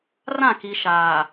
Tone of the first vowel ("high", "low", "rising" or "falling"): falling